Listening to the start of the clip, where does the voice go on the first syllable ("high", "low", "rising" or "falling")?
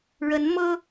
rising